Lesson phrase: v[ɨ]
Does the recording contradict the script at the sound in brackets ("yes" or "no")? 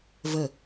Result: yes